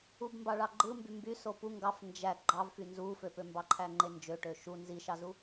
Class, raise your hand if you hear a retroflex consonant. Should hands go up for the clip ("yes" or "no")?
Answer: yes